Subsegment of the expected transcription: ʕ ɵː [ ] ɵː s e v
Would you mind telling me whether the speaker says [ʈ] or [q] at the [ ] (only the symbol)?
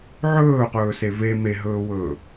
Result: q